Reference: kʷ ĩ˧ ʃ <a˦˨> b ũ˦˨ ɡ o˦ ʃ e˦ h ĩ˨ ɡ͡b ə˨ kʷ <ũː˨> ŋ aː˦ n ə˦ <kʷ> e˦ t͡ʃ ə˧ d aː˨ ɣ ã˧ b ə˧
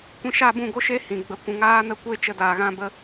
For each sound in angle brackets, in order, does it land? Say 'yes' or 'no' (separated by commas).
yes, no, yes